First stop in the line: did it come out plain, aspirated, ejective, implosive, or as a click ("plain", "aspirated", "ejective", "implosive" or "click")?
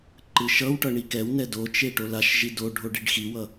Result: click